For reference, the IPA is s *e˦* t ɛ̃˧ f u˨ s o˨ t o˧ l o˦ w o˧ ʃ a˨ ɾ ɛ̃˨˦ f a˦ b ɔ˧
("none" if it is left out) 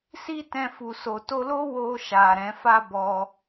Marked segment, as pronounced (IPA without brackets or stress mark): i˦